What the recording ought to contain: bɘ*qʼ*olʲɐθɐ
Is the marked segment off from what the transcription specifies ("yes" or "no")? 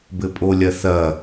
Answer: yes